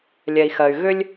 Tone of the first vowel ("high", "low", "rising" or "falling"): low